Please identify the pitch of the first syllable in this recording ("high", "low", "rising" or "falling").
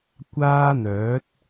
high